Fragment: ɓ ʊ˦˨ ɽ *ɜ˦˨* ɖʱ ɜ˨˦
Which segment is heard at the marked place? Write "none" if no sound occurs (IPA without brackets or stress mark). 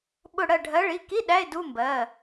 ɜ˦˨